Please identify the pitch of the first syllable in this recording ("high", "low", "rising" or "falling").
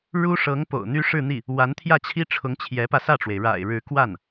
high